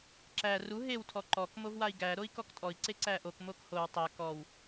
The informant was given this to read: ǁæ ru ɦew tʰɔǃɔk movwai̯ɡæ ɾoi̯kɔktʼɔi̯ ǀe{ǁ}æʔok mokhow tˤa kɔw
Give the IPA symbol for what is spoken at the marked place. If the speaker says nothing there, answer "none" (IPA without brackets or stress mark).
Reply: ǀ